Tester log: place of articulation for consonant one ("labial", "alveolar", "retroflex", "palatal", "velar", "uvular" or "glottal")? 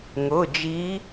velar